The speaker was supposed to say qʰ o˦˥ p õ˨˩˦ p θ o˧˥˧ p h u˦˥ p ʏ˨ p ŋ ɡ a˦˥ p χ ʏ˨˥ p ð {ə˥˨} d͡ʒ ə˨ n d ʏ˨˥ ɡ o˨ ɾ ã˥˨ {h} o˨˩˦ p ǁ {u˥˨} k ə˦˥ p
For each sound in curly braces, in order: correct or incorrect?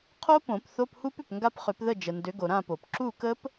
correct, incorrect: p, correct

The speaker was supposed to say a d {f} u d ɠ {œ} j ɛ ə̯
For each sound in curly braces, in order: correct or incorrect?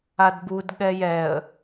incorrect: b, incorrect: ɛ

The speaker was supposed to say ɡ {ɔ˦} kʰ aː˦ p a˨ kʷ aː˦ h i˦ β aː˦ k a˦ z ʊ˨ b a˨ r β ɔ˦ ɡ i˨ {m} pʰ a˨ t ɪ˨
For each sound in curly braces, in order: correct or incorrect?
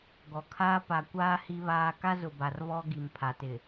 incorrect: ɔ˨, correct

